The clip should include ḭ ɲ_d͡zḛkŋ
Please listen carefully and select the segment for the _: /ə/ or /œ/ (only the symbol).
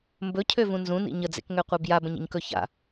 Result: ə